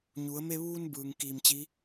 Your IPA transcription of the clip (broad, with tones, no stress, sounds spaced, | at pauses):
ɲ u˩˧ ə̯ m e˧ ʋ uː˧ n b ɯː˩ ŋ k iː˧˩ m t͡ɕ i˧˥